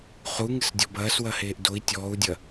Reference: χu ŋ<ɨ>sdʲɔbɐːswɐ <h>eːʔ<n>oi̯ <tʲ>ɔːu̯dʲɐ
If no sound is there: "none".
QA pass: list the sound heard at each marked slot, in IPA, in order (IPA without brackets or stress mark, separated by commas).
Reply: ɨ, h, d, tʲ